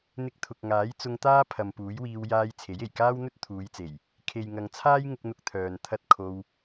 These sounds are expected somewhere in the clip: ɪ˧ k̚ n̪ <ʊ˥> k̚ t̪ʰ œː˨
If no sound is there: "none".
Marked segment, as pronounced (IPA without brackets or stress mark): ʊ˧